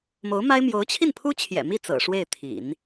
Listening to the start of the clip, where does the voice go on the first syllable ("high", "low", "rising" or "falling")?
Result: rising